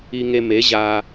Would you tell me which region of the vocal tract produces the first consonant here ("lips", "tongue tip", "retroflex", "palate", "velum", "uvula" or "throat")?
velum